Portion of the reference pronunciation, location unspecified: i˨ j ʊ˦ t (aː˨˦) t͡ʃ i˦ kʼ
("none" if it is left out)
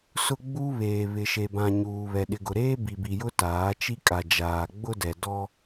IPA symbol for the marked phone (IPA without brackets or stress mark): aː˨˦